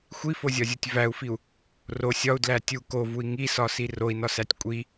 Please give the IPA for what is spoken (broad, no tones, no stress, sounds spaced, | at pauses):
xʷ i f o zʲ ɒ zʲ o tʲ v æ u̯ f i u̯ | r o sʲ ɒ u̯ d l æ tʲ u k o v u i̯ ŋ i s ɒ s i r o i̯ n ɒ s æ tʲ kʷʼ i